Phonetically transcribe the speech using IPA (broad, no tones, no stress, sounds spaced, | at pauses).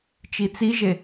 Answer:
t͡ʃ i t͡s i ʒ e